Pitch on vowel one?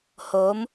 rising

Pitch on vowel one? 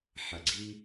low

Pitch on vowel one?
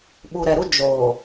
low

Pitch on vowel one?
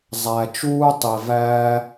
low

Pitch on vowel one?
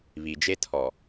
low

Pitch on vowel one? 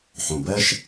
low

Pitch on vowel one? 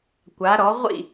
rising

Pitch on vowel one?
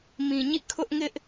low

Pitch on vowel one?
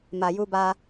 low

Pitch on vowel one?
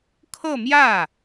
falling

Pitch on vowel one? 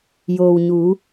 low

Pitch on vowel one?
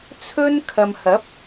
high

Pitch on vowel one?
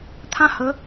high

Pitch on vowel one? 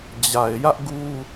low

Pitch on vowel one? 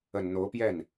low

